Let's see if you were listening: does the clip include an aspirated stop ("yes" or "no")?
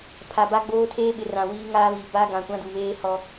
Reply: yes